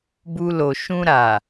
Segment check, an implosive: absent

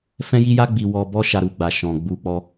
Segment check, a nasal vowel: present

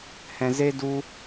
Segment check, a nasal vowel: present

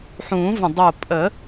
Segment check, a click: absent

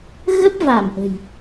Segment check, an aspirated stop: absent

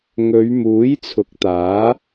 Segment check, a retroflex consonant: absent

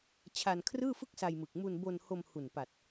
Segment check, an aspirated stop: present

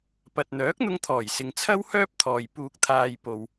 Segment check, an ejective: absent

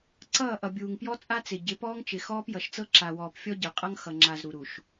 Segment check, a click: present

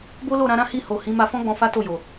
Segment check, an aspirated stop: absent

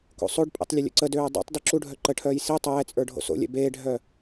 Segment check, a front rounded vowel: present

